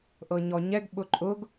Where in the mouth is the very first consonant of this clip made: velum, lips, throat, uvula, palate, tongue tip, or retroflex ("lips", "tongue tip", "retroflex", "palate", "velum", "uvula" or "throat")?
throat